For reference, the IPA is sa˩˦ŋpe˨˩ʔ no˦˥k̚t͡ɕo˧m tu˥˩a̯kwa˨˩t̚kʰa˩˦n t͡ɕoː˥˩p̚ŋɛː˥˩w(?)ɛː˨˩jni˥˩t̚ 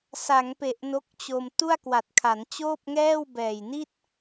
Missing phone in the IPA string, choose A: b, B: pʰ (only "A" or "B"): A